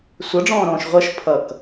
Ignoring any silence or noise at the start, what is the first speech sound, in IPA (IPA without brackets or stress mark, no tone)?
sʷ